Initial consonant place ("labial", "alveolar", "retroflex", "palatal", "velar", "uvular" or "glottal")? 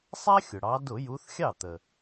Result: alveolar